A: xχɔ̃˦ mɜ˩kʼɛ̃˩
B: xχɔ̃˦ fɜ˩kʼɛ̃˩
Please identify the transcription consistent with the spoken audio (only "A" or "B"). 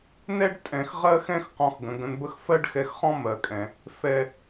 A